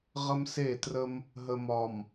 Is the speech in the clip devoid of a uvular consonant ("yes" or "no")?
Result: no